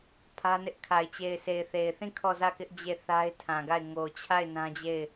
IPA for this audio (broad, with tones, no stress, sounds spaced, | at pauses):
pʰ ä˦ n ɪ˦ ʔ kʰ a˨ ɪ̯ t͡ɕ e˨ ɪ̯ sʰ e˨ ɪ̯ θ e˨ ɪ̯ θ ĩ˦˨ kʰ ɔ˦˨ z ä˦˨ k ɪ˦ ʔ d͡ʑ e˦˨ θ a˦ ɪ̯ tʰ ã˨ ɡ a˦˨ ɪ̯ ŋ o˨ t͡ɕʰ a˦˨ ɪ̯ n ã˦ d͡ʑ e˦˨ ɪ̯